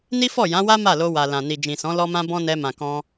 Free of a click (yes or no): yes